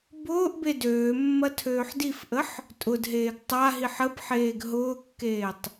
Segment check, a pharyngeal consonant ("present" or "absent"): present